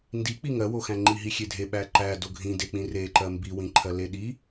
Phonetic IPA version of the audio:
n d i k͡p i ŋ ɜ w o x æ̃ ŋ͡ǃ i ɦ i xʲ e dʱ e ɓ æ ǃ æ d o ɡʱ ĩ d e k͡p ĩ r e ǃ ɜ m b i w ĩ ǃʰ ɜ l e ɗ i

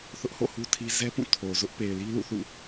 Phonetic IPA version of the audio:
θ ʊ˦ ʔ h o̰˦˨ h u˦ tʰ i˦ z ɛ˦ p ũ˦˨ tʰ o˨ z ʊ˦ ʔ p e˨ ɪ̯ l i˦ l ṵ˦˨ θ ṵ˦˨

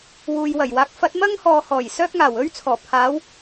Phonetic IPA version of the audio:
w uː˨ j w ɐ˨˩ j w aː˨˥ k̚ f ɐ˨˥ t̚ m ɐ˥ ŋ h ɔː˨˧ h ɔː˨˩ j s œː˥ k̚ ŋ aː˨˩ w ɵ˥ ɥ t͡sʰ ɔː˨˩ pʰ aː˨˥ w

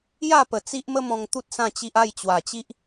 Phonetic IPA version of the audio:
j a˥˧ p ə˨˩ t͡s i˦ ʔ m ə˦ m ɔ̃˧ ŋ t̪ u˦ t̚ s ã˥˧ t͡ɕ i˦ ʔ a˥˧ j t͡ɕ w a˨˩ t͡ɕ i˦ ʔ

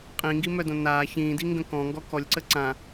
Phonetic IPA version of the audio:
qʼ ĩ ŋ ɡ i m œ d õ n aː ç ĩː d i ŋ ɡ ə̃ k ɔ̃ ŋ ɡ ɔ k ɔ lʲ ǀ ə ǀ ã

